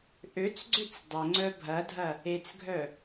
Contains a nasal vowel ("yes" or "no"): no